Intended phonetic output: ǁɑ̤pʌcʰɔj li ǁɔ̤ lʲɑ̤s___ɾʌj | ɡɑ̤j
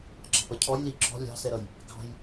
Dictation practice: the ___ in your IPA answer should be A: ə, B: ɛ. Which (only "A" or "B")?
B